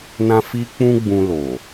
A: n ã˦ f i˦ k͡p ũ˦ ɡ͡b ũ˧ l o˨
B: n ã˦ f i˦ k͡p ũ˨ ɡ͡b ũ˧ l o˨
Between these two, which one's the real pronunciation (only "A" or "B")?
A